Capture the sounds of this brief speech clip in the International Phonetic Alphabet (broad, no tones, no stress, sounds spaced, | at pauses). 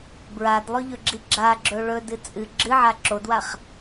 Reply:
b ɹ a d lˠ ɵ ʎ ɵ ɡ͡ǁ i ɡ͡ǁ a ɡ͡ǁ ɵ ɭ ɵ d ɨ t͡sʼ ɨ ɡ͡ǁ ɨ ʕ a ǁ o d w a χ